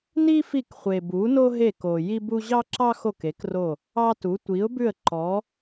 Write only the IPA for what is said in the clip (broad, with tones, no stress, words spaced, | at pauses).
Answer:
ni˥fi˦˨kχʷe˨ bu˨˥no˥ ɦe˦˨ko˨ ji˥bu˥ ʑɑ˥ǁɑ˥xo˦˨k e˨˥kro˦˨ | ɑ˥tu˨˥ tʷi˨˥ʊ̯bʉ˦˨ə̯ ǃɔ˨˥